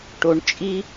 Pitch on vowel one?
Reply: low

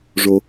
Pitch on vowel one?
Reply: low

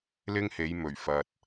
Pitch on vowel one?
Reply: high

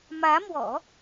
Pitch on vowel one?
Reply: rising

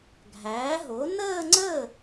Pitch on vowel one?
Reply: rising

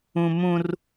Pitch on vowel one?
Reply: high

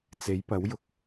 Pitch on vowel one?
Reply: rising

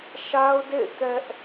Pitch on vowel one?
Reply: high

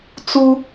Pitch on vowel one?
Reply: high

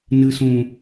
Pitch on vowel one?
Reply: low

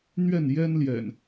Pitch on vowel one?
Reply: falling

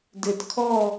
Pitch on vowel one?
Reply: low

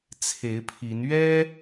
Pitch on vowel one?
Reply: rising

